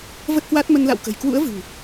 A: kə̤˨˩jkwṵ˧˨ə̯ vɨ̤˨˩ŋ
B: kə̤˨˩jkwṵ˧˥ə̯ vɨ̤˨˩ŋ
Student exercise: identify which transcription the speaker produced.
B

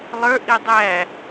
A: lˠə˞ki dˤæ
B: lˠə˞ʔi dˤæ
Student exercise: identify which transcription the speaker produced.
B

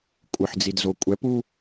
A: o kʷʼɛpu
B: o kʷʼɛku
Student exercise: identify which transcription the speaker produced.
A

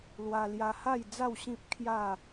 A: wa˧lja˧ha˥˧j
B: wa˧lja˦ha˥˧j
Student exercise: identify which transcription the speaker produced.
A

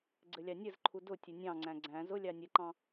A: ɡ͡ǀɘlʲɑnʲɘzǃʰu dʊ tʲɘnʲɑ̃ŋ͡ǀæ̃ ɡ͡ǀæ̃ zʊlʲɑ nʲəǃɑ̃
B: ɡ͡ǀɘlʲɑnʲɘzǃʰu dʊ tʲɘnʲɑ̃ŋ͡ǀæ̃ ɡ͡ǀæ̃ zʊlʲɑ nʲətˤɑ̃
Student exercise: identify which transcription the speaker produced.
A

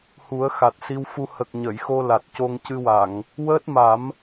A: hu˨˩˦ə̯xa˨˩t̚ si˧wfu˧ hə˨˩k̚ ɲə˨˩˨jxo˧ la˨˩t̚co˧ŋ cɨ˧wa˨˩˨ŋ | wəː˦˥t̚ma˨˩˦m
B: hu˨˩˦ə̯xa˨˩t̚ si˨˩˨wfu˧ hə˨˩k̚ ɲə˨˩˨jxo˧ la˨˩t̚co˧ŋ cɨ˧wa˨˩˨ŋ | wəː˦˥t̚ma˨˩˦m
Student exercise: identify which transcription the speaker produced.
A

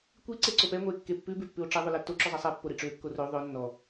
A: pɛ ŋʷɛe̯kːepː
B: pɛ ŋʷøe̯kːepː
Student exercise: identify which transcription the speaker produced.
A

